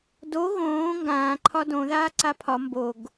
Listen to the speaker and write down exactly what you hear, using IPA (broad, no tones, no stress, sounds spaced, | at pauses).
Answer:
d o ɣ õː ŋ ɡ ãː ǃʰ ɒ d õ ð aː ǀ a pʰ ɒ m b o ɡ